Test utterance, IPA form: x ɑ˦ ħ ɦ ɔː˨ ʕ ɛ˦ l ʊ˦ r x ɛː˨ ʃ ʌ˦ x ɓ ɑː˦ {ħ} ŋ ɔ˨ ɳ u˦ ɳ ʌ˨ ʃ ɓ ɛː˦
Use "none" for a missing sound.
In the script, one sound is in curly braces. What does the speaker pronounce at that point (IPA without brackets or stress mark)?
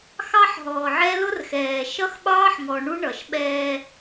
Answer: ħ